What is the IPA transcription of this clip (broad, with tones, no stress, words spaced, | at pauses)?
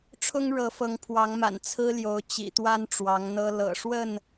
ʈ͡ʂʰʊ˦ŋɻɤ˨˦fɤ˨˦ŋ pʰwɑ˨˦ŋma̰˨˩n t͡sʰɹ̩˦ljo˨˦ʊ̯ t͡ɕḭ˨˩t̪wa˦n ʈ͡ʂwɑ˨˦ŋn̪ɤ˦ lɤ̰˨˩ʂwə˥˨n